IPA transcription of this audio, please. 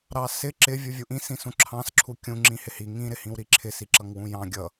ɾɑsɪ ǁɪ vʲuvʲuʔĩ sĩsũǁʰɑ̃s ǁʰukʲũ ŋ͡ǁĩhɪhi ŋĩ ɾɪhĩwɾiǁʰɪ siǁʌŋwũjɑ̃ ɡʲʌ

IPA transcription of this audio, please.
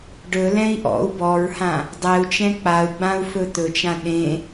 ɖɵlɛ̃i̯ ʔɔ̰u̯ bɔɹhã | dˤɛu̯t͡ʃɛ̃ k͡pau̯ɡ͡bãu̯ fɵt̪ɵt͡ʃã ɗẽ

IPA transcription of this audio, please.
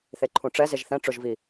θeǃʰũʈ͡ʂɛ zeʒθɛ̃ ʈ͡ʂʊʒvi

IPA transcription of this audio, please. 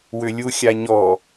wʏlʲuxʲaɲɔ

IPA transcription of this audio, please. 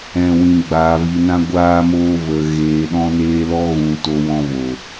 ɛ̃˦ wĩ˧ɡ͡baː˧vi˧nã˦ ɡʷaː˦moː˦ və˧ ɣeː˧ɗɔ̃˦neː˦ lɔ˦ɣũ˧ to˦wɔ̃˦vo˨

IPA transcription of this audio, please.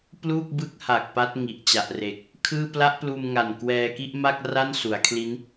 pluː˥˩k̚bɯ˦˥k̚ha˨˩k̚ pa˦˥t̚ŋi˨˩ʔ t͡ɕa˨˩ʔre˨˩k̚ | kʰɯː˥˩ pla˦˥ʔpluː˧mŋa˨˩n kwɛː˧ki˥˩ʔma˥˩k̚ ra˥˩nsu˩˦a̯kʰli˦˥n

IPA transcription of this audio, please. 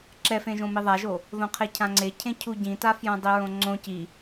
ǁɛfẽʒõ miðˤaʒo | ðõqʰecʰãŋ͡ǀe cʰẽcʰuɟĩta fjõdˤiɹõŋ͡ǀõ ci

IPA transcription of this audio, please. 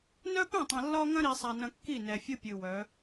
nœ˦pœ̃˦˨tˤɐ̃˨ lːɒ˦ŋɐ̃˦ ɾi˨sˤa˨nɐ̃˨ kːi˦˨nɛ˨fʲɨ˦pʲɨ˨ wœ˨˦

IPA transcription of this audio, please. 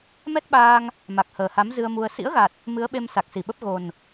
mɛ˦˥t̚ɓaː˧ŋ | ma˨˩k̚həː˨˩ha˨˦m zɨ˧ə̯mu˧ə̯ sḭ˧˥ə̯ɣa˨˩t̚ | mɨ˨˦ə̯ɓe˧m sa˨˩k̚si˧˩ɓə˦˥p̚ ɣo˨˩n

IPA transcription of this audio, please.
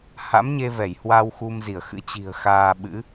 ha̰˧˥mɲe˧vɛ˧˩j hwa˧w xu˧mzi˧˩ə̯xɨ̰˧˥ t͡ɕi̤˨˩ə̯xaː˧ɓɨ̰˧˥

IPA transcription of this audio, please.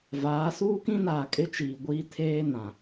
vaː˨˦ suː˦kĩ˦naː˨ kʼɪ˦t͡ʃiː˨ɡʷiː˦tʰeː˦ nã˨

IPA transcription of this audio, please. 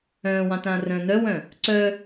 œ̃ːwɑ̃tãːrœ̃ː nœwœ̃ | ǀœ

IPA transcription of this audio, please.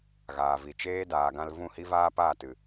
ɣaː˨vi˨ t͡ʃeː˦daː˨ɡã˧l vũ˦˨hi˦vaː˦ paː˦˨tɨ˨

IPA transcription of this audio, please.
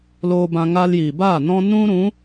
loː˧bã˧ ŋaː˧ljiː˨baː˦˨ nɔ̃˧ nũ˦ɾũ˨˦

